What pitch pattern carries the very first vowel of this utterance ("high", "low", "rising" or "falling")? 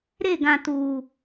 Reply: falling